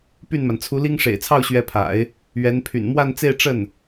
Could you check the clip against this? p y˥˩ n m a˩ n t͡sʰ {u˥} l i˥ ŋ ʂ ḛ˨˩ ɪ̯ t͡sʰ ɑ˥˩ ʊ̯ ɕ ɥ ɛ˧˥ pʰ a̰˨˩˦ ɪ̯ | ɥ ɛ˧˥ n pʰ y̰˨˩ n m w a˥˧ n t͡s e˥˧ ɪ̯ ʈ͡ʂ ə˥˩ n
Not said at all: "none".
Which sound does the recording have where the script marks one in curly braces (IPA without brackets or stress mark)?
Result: u˧˥